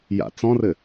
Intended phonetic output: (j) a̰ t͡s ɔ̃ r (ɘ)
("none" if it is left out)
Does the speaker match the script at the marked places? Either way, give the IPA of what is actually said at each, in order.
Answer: j, ɘ

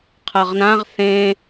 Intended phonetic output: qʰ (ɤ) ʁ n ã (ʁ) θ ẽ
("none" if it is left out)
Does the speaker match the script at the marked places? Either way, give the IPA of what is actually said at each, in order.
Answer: ɤ, ʁ

